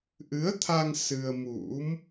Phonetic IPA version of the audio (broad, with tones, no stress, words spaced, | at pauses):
ʔɨ˨˦ə̯t̪ʰa˧ŋ sɨ˧ə̯ mṵ˧˥m